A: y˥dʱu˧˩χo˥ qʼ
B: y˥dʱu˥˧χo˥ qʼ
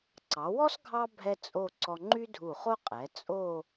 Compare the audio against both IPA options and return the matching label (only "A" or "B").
A